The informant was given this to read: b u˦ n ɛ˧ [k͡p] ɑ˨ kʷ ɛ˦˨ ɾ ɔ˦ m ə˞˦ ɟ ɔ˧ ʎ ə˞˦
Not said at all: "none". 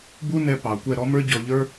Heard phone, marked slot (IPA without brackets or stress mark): p